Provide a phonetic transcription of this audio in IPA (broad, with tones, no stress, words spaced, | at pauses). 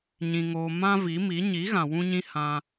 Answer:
ɲĩ˧ŋoː˧ mã˦vi˨˦mi˨˦ ɲi˨˦ɣã˨wũ˧ɲĩ˧ hã˧